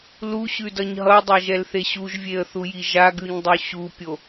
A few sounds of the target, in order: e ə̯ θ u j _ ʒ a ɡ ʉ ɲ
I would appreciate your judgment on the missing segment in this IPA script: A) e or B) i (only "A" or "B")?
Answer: B